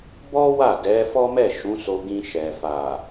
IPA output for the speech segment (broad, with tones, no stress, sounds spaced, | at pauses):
b ɔ˦ w a˦˨ d ɛ˨˦ f ɔ˦ m ɛ˦˨ ʃ ũ˨˦ s o˧ ɡ ĩ˧ ʃ ɛ˨ f a˨